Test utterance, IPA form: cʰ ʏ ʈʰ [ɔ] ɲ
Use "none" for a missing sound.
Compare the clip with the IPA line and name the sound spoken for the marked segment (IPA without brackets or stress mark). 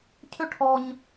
ɔ